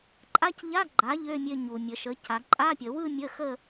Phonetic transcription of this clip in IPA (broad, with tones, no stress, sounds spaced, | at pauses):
ǃʼ a˧˥˧ c ʎ a˧˥˧ ɡ͡ǃ a˩˥ ʎ ø˧˥˧ mʲ ø˧ ɲ u˩ mʲ ə˩˧ ʃ ə˩˥ cʰ a˩˧ ǃʼ a˧˥˧ pʲ ə˩˧ w ɯ˥˧ mʲ ə˧˥˧ x ə˥˧